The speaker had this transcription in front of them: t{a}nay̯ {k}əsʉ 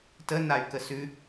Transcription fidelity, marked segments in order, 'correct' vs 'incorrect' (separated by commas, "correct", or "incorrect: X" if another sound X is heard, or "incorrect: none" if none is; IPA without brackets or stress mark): incorrect: ə, correct